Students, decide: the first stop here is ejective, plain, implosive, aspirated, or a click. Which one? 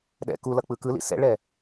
implosive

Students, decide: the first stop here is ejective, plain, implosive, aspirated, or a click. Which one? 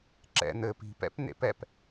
click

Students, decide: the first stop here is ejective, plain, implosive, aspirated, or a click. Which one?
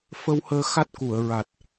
plain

